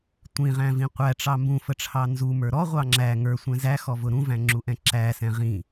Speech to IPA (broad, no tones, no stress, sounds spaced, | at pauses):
tʷ ĩ ʁ æ̃ v ĩ qʷ æ ʈ͡ʂ ɑ m b ũ f ə ʈ͡ʂʰ ɑ n z u m ə˞ ɾ ɔ ʁʷ ɑ ŋ͡ǁ æ ŋ ə˞ sʷ ɛ̃ z æ x ɔ v ʊ ɾ ũ v æ̃ ŋ͡ǁ u ʔ ɛ̃ ǁ æ s ɛ̃ ʁ ĩ